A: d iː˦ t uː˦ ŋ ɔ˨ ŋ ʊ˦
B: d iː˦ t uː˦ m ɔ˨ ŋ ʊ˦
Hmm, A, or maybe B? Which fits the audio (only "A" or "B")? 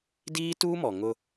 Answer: B